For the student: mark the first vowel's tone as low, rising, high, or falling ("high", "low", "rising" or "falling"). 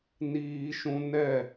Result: high